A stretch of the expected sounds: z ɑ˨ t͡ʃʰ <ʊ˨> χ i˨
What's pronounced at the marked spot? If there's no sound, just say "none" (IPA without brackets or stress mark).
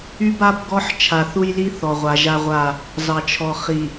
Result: ɔ˨